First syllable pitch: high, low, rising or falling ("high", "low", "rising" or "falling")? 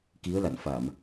rising